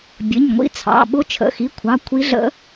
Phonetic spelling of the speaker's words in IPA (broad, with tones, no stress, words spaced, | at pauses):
bʲə˩˧˩ɲŋʷḭ˧˥t͡sʰɑ̰˩˧˩ ɓʊ˧˥t͡ʃʰə̰˩˧˩xi˩˧˩kʷʰɑ˩˧˩ kʷʰi˧˥ɮə̰˧˥